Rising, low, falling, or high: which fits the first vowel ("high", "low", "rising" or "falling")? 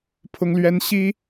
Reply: high